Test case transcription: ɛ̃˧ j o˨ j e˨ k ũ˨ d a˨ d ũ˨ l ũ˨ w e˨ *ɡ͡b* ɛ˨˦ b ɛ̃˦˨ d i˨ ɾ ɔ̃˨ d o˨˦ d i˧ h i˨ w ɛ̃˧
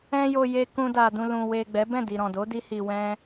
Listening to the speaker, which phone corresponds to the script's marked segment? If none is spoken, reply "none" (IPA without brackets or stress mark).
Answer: ɡ͡b